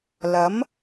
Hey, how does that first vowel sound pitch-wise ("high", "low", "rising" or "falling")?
rising